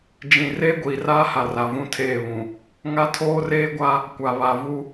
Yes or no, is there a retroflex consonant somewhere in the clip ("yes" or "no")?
no